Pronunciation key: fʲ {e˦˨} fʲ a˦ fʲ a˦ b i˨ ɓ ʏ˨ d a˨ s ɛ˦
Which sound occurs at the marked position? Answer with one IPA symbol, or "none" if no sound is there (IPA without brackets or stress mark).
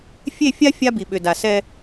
e˦˨